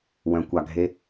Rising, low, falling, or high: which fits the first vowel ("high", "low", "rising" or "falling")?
low